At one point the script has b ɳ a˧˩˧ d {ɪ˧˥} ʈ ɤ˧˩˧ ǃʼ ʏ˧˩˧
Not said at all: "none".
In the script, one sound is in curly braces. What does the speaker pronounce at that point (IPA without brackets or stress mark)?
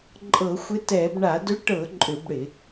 ʏ˧˥